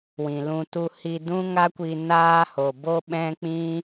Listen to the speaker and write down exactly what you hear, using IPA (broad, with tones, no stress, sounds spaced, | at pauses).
w ĩ˨ l ũ˧ t u˦ h i˧ d ũ˦ ŋ a˦ kʷ i˧ n aː˦ h o˨ b o˦ ɓ ɛ̃˦ k͡p ĩ˦